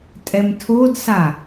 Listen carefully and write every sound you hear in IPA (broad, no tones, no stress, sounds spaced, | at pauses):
tʼ ɛ m tʰ o d s a